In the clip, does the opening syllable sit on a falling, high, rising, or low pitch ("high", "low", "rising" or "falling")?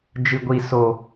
low